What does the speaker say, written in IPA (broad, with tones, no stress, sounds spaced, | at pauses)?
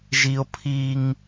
ʒ i˦ o̯ pʰ i˦ ŋ